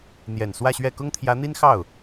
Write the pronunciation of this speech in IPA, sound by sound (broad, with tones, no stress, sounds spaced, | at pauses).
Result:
n̪ j ɛ˨˩ n s w ä˥˧ ɕ ɥ ɛ˥˩ k ʊ˥ ŋ t̪ʰ j ä˧˥ n̪ i˥ n x ɑ˥˩ ʊ̯